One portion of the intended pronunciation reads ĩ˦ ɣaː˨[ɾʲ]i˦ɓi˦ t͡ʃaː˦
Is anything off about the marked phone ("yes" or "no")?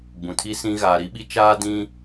yes